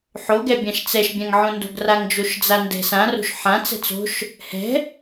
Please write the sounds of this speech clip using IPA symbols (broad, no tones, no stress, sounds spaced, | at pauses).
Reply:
ħ o ɡ ɛ bʲ ã ʃ t͡s ɛ ʃ bʲ ã ŋ ʕ õ n d o̤ ɡ r a ŋ d͡ʒ o ʃ d͡z a n d ɛ̤ s ã r o̤ ʃ ħ ã t͡s ɛ̤ t͡s o̤ ʃ | h ɛ̤